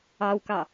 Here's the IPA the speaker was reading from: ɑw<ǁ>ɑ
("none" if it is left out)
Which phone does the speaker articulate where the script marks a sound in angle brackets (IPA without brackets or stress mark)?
k